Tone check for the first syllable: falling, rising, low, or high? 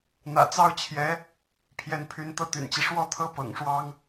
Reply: low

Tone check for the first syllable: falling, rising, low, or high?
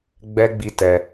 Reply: high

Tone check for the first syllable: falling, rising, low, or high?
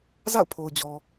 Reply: falling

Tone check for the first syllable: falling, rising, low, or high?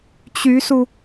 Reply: rising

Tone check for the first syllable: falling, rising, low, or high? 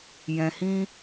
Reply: low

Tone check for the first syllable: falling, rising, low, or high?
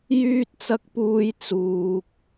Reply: high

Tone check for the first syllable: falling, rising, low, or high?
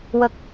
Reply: low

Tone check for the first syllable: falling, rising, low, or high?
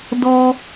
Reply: high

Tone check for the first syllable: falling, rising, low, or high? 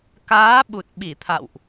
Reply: rising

